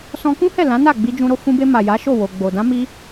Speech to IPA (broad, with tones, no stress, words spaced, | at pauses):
sɔ̃˧kũ˦ hɛ˦˨ lã˨˦na˦˨ɡ͡bi˧ d͡ʒũ˧ɾo˦ fũ˧be˧ ma˨ja˨˦ ʃo˦˨wo˨ ɡ͡bo˨ dã˨˦mi˧